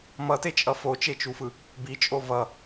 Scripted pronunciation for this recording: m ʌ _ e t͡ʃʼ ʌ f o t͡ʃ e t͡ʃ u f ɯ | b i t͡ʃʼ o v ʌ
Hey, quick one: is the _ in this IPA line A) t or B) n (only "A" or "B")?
A